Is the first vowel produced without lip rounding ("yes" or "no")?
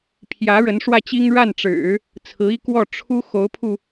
yes